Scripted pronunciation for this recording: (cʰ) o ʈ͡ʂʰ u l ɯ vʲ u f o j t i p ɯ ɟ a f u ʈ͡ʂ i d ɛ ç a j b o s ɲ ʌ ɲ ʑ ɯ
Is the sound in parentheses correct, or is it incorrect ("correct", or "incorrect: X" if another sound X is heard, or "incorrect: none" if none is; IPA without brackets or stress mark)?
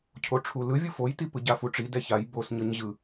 correct